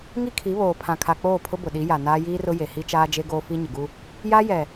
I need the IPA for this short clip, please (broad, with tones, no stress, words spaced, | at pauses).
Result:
ŋi˦kʰi˨˦βoː˨ pʰã˨kʰa˨k͡poː˦˨ pʰʊ˦bʊ˨ɗi˨˦ ja˨ naː˦jiː˦rʊ˦ je˨hi˦t͡ʃaː˦d͡ʒe˦ ɡoː˦fi˦ɲɪ˨ɡu˦ | ja˦jɛ˨